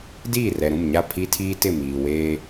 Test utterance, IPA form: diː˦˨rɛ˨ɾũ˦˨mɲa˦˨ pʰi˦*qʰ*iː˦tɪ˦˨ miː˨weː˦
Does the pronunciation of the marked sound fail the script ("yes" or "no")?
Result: yes